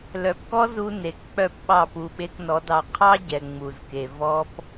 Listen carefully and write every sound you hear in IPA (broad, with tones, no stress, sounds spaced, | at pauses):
l œ˨ p k ɔ˦ z u˧ n e˨˦ k k͡p œ˦˨ p ɓ ɑ˦˨ p u˨ ɓ e˧ k n ɔ˨˦ d ɑ˧ qʰ ɑ˦ ɟ ɛ˨ ŋ͡m u˨ z k e˨ v ɔ˦ p